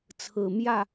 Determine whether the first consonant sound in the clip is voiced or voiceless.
voiceless